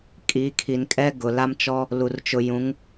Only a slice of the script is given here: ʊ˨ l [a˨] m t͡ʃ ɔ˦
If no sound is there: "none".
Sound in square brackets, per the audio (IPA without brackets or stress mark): a˦